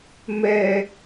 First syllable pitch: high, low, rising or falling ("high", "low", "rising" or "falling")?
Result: high